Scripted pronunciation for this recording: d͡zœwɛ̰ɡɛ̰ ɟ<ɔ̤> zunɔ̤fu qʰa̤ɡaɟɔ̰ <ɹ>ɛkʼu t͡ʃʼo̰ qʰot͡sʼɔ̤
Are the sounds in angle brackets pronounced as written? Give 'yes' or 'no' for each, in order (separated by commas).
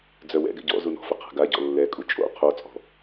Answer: no, no